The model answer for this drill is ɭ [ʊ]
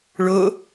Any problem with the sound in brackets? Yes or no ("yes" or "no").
no